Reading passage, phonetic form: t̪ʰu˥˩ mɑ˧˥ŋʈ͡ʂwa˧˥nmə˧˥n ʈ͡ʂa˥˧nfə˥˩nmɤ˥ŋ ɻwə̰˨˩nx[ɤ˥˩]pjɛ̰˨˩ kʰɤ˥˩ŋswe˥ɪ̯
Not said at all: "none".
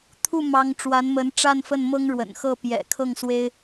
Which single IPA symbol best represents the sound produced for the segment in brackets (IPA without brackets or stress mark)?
ɤ˥˩